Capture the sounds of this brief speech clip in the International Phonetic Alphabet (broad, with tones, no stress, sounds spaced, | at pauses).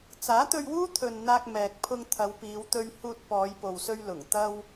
t͡s aː˨˥ t̪ ɵ˧ ɥ w uː˥ t̪ʰ ɵ˧ n n̪ aː˧ k̚ m ɛː˨ k̚ pʰ ʊ˧ ŋ t̪ʰ ɐ˨˧ w p iː˨˧ w t̪ ɵ˧ ɥ h uː˧ t̚ p ɔː˨˧ j p o˨ w s ɵ˧ ɥ l ʊ˨˩ ŋ t̪ ɐ˧ w